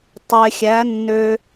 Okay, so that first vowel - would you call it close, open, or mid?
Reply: mid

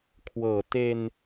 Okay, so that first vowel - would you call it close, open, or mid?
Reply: mid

